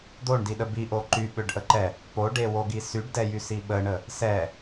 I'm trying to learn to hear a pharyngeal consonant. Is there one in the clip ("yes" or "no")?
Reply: no